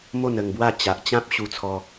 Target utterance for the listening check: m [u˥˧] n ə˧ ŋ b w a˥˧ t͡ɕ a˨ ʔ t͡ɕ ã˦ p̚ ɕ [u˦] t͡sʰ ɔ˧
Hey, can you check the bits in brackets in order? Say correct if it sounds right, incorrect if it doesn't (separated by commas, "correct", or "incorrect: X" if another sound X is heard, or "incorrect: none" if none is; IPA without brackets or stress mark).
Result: incorrect: o˥˧, incorrect: u˧